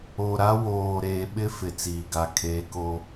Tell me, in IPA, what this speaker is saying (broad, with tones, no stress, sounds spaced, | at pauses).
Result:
o˨ ɾ a˦ w oː˨ ɾ eː˨ ɓ ɪ˦ f ɪ˨ t͡s iː˨ ɡ a˨ kʰ eː˨ k o˨